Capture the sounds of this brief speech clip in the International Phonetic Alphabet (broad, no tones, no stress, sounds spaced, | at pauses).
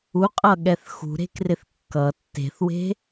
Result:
u qʼ ʌ ɠ ɛ θ x ṳ ɾ e̤ k r ɪ θ kː ʌ tː e̤ θ w e̤